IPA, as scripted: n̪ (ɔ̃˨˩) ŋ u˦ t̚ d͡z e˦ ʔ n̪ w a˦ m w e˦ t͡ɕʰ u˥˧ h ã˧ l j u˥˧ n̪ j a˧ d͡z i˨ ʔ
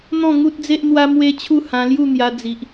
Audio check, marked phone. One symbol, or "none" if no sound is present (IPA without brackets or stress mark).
ɔ̃˥˧